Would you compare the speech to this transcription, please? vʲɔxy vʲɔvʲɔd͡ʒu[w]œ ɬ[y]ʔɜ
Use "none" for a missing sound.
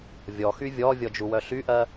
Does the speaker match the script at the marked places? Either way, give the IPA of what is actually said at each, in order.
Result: w, y

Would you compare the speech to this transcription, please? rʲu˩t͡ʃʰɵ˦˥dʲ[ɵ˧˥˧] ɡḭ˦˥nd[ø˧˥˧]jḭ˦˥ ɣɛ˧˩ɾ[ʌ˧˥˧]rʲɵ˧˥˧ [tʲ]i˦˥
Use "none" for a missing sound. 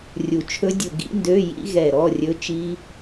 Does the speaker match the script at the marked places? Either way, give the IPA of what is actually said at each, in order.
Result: ɵ˧˩, ø˧˥˧, ɔ˧˥˧, t͡ʃ

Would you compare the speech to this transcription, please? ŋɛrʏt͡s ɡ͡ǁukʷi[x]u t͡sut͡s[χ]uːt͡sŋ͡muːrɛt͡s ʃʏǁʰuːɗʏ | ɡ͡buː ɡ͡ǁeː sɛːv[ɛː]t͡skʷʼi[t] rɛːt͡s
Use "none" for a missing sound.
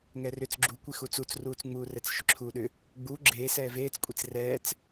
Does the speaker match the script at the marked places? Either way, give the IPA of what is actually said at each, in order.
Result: x, r, eː, t͡s

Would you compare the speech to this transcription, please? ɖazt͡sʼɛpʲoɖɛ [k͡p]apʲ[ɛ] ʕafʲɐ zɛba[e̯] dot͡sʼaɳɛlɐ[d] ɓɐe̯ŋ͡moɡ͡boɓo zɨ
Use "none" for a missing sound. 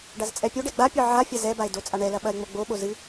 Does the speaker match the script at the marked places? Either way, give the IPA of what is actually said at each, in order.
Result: ɡ͡b, ɨ, e̯, none

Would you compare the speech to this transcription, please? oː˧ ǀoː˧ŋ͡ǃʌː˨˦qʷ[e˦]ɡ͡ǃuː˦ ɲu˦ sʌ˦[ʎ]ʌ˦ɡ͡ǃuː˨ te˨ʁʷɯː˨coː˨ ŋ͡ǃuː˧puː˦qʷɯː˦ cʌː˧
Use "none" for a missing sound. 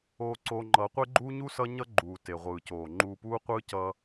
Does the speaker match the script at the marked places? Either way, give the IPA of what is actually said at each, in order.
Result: e˦, ɲ

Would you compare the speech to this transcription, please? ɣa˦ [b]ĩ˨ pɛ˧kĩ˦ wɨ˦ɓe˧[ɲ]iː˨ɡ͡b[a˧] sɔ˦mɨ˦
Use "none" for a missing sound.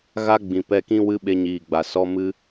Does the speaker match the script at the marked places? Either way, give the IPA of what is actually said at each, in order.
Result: ɡ͡b, ɲ, a˨

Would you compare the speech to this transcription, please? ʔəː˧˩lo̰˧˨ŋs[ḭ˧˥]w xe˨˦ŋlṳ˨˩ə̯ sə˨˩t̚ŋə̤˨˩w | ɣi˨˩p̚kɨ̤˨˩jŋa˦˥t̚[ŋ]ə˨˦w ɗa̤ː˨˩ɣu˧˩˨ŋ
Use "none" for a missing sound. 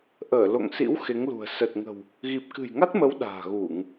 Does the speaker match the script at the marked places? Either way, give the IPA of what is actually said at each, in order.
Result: ḭ˧˥, m

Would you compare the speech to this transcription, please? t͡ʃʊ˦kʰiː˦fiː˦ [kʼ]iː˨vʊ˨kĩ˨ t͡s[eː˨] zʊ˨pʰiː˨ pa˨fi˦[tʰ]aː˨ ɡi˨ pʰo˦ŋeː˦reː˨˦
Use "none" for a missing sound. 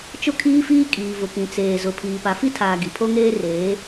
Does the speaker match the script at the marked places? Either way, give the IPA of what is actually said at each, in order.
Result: kʼ, eː˨, tʰ

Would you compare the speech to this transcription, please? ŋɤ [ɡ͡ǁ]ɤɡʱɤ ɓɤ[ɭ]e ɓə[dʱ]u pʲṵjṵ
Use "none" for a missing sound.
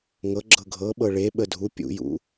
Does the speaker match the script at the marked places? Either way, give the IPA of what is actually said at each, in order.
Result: ɡ͡ǁ, ɭ, dʱ

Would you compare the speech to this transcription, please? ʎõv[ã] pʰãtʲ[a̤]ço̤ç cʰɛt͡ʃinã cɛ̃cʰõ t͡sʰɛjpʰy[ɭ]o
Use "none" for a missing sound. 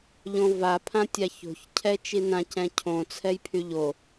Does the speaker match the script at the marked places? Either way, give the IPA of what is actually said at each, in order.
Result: a, a, ʎ

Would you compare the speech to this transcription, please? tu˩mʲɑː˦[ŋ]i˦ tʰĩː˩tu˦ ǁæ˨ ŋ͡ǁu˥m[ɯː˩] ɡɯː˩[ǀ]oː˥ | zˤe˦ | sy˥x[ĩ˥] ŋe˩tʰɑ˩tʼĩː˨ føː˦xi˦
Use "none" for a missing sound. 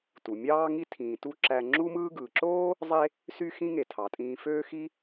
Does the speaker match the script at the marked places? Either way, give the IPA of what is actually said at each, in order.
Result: ŋ, ɯː˥, ǁ, ĩ˥

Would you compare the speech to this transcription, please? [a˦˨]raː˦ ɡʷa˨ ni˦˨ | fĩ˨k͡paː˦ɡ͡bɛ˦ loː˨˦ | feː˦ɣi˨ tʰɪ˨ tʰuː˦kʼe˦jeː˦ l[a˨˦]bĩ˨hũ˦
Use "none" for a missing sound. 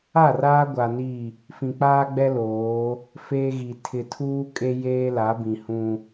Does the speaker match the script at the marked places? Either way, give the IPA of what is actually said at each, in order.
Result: a˦˨, a˨˦

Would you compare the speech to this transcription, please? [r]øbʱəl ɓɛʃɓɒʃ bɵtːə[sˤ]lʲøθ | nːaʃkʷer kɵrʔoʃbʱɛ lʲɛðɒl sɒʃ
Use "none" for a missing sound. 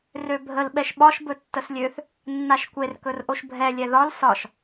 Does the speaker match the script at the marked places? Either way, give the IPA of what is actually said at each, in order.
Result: r, s

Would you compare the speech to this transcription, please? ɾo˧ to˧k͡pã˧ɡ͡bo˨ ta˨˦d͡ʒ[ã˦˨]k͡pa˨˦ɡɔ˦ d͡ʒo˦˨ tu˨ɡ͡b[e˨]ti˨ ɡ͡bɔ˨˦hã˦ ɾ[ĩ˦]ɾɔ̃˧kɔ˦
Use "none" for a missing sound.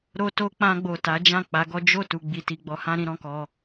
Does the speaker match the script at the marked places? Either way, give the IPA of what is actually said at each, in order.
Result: ã˦˨, i˨, ĩ˦

